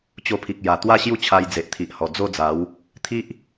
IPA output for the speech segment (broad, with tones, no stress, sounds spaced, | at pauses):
t͡ɕ o˧ pʰ i˨ k̚ j a˨˩ t̪ w a˥˧ ɕ j u˥˧ t͡ɕʰ a˧ j d͡z e˨ ʔ t̪ʰ i˨ ʔ h ɔ˨˩ d͡z o˥˧ d͡z a˨˦ w | t̪ʰ i˦ ʔ